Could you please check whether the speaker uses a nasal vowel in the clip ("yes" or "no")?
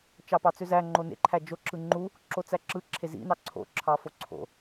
no